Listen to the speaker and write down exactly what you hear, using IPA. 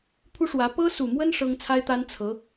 pʰ u˥ ʂ w ä˧˥ p ɤ˥ s u˨˩ m w ə˥ n ʂ ɤ˥ ŋ t͡sʰ a˥ ɪ̯ t̪ a˥ n t͡sʰ ɤ˧˥

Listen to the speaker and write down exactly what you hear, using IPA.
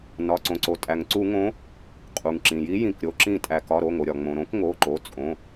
n ɒ˩˧˩ ǀ õ˩ ǀ o˩ tʼ æ˩ ŋ ǀ u˧˩˧ ŋ õ˨˦ | qʼ u˩ ŋ ǁ ĩ˩ j i˨˦ j ĩ˩˧˩ k ɾʲ o˩˧˩ ǁ ĩ˧˩˧ tʼ æ˩ k ɒ˩˧˩ ɾ o˩˧˩ ŋ o˩ ɾʲ ɒ˩ ŋ͡m õ˩ ɾ õ˨˦ k ŋ o˩˧˩ ǃ o˩˧˩ t͡sʼ õ˩˧˩

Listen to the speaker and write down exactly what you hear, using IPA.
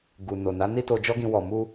ɡ u˨ n o˨ n a˨˦ n i˦ t o˧ d͡ʒ ɔ˦ ɡ ĩ˧ w ɔ˧ m u˦

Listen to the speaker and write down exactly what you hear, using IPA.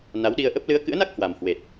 n a˨˦ w ɗ i˧ ə̯ ʔ ə˦˥ p̚ l ɨ˨˦ ə̯ k ɨ̰˧˥ ə̯ n a˦˥ k̚ h w a˨˩ m h w e˨˩ t̚

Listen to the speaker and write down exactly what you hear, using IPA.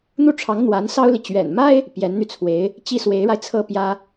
n̪ u˥˩ ʈ͡ʂʰ ɑ˧˥ ŋ n̪ w a˧˥ n s ɑ˥ ʊ̯ l i˨ t͡ɕ ɥ ɛ̰˨˩ n m a˥ ɪ̯ | p j ɛ˧˥ n n̪ y˧ t͡sʰ w e˧˥ ɪ̯ | t͡ɕ i˥˩ s w e˧˥ ɪ̯ ɻ a˧ ɪ̯ t͡sʰ ɤ˥˩ p j ä˥

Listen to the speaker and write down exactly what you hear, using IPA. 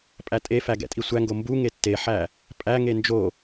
pʼ æ tʼ e f æ ɡ ɛ̰ tʼ i sʷ æ ŋ ɡ o m b u ŋ e tː e ħ æ | pʼ æ ŋ e n d͡ʒ o

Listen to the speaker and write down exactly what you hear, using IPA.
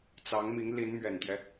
t͡s ɑ˧˥ ŋ m i˧˥ ŋ l i˧˥ n m ɥ ɛ˨˩ n t̪ ɥ ɛ˦

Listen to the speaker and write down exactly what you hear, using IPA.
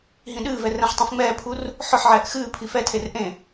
ɦ ĩ ɗ ɨː v ɛ r ɛ̃ ħ tˤ ũ f ŋ͡m ɛː pʰ u r | ħ ɵ ħ ʕ ɛː ʔ x ɨː pʰ i f ɛ tʰ e r ʔ ẽ

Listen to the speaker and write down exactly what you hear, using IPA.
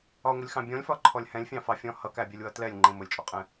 ɒ ŋʷ ɪ lʲ x ɑ̃ bʲ ɔ̃ lʲ f ɒ ǃʰ ɔ lʲ h ɛ̃ lʲ fʲ ɑ̃ f ɑ fʲ ɔ̃ h ʌ k æ bʲ ɜ lʲ w ʌ t l ɛ lʲ ŋ͡ǃ ĩ m ʊ lʲ t͡ʃʼ ɔ qʼ ɛ̃

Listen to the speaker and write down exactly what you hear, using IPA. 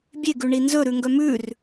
bʲ e ɡ ʉ ɳ i n z ɵ ɾ ʉ ŋ ɡ œ m ʉ r

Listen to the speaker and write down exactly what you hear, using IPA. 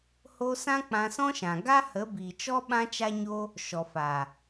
h o˦ s ã˦ k͡p ã˧ s ɔ̃˦ ʃ ã˨ ɡ a˦ h ə˨˦ b iː˨ t͡ʃ ɔ˦ ɓ ã˦ t͡ʃ a˦ ɲ o˦ | ʃ ɔ˨ f a˨

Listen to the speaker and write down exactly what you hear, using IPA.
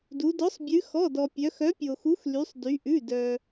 d u˩˧ d ɔ˨˥ sˤ bʲ ʉ˩˧ x ɔ˩˧˩ d ɔ˩ pʲ œ˩˧ x œ˨˥ pʲ o˩ x u˨˥ x l y˩˧ sˤ d y˩˧ ʔ ʉ˩˧˩ d œ˩

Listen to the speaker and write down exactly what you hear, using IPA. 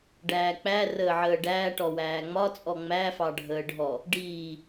ɖ æː k͡p æ r əː ʕ əː ɖ æː ʈ ɔ w æː ŋ͡m ɒ t͡sʼ ɔ ŋ͡m æ f ɑ ɖʱ əː ɖʱ ɔ | ɖ iː

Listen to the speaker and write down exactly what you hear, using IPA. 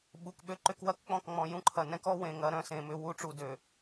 ɓ u˨ k ɓ ø˦ ǃ ʏ˦ k w ɐ˦ k k͡p ɔ̃˦˨ k ŋ͡m ɔ̃˨ j ũ˦ ǃʰ ɐ˨ n ɛ̃˦ k ɔ˦ w ẽ˨ ŋ ɐ˨˦ ɾ œ̃˦ s ẽ˨ m ʏ˦ w u˦ ʈ͡ʂ u˨ d ø˨

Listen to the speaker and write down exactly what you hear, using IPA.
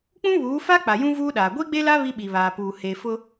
k͡p ũ˦ β uː˨˦ f a˦ k͡p a˨ j ũ˦ v uː˦ ɗ aː˨ ɡʷ i˦ ɡ͡b e˦ l a˦ β i˦ ɓ i˨ β aː˨ p uː˨ h e˨ f ʊ˦

